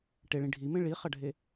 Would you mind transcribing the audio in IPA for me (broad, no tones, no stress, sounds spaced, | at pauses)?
ʈ e ɭ ĩ ɖʱ i m ẽ ɭ i χ ɐ ɖʱ e